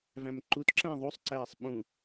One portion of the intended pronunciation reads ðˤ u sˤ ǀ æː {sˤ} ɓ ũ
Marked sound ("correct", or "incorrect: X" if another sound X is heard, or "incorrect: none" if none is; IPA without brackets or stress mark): correct